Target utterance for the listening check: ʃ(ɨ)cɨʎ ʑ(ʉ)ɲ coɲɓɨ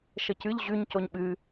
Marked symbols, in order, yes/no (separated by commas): no, yes